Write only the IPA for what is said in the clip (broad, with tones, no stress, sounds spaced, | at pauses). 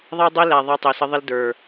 ðˤ æ˦ dˤ e˦ l æ˨ ðˤ ɛ˧ tˤ e˨ s ə˧ ðˤ ɪ˦ l d ə˞˨